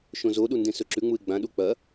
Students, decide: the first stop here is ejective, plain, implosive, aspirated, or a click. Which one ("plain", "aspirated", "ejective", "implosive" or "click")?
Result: implosive